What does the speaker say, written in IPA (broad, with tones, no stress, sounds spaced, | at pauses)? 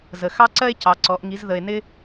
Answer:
z ə˨˩ x ɑ˦ ǀ ɜ˦ e̯ c ɑ˩˧ ǀ ɔ˩˧ ʔ ŋ i˩˧ z ð ə˨˩ e̯ n ɪ˦